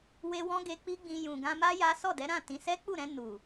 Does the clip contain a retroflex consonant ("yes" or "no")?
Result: no